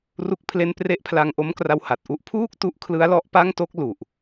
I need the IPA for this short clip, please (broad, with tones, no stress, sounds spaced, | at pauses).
r u˥˩ k̚ pʰ l e˥˩ n p r e˦˥ ʔ pʰ l a˧ ŋ ʔ o˦˥ m k r a˧ w h a˨˩ t̚ ʔ u˦˥ ʔ pʰ uː˥˩ k̚ t u˦˥ ʔ kʰ l ɯ˦˥ a̯ l ɔ˦˥ ʔ p a˥˩ ŋ t o˥˩ k̚ l u˨˩ ʔ